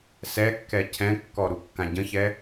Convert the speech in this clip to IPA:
s ɛ kː ɛ cʰ ɛ̃ kː ɔ ɾ u kː ã ɟ ə̃ ç ɛ

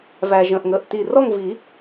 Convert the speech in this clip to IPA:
v æ˩ ʒ ə̃˩˧˩ ʔ ŋ əː˩˧˩ ʔ t i˧˩ r ɔ˥˧ ŋ v i˨˩˦

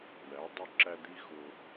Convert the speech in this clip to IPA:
ɳ æ˨˦ dˤ ʊ˦˨ ǁ æ˦ d̪ i˦ ɣ ʊː˦

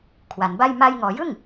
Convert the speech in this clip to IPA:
kʰ w a˩˦ n b a˥˩ j m a˧ j ŋ ɔː˩˦ j ɯ˥˩ ŋ

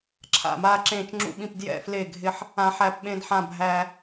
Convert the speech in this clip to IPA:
ǁʰ a̰˦˨ m aː˦ ǁ ẽː˦˨ t͡ʃ ŋ͡ǁ ṵ˦˨ ɓ ĩ˦˨ p d j ɛ̰˦˨ f l e˦˨ ɡʱ ɪ˦ ħ | ã˦ ħ æ˦ p ɓ ẽ˦ d ħ ã˦˨ bʱ æ˦

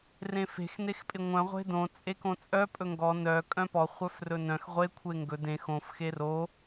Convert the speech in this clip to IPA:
r ẽ f e̤ x n e x pʼ ɪ ŋʷ œ̃ ʁʷ e̤ d õ t͡sʼ e k õ t͡sʼ œ pʼ ɵ ŋ ɡ ɔ n œ kʼ œ̃ p ɔ χʷ œ f r ɵ n œ̃ x ʁʷ e kʷʰ e ŋ ɡ ɵ d ẽ x õ f x e r o

